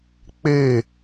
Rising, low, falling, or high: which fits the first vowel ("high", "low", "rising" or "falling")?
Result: falling